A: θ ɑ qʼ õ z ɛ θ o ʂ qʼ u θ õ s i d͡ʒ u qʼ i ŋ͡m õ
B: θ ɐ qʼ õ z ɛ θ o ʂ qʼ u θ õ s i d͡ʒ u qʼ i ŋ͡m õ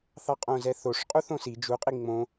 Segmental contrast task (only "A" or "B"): A